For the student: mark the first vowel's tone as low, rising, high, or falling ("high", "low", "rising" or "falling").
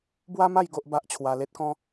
high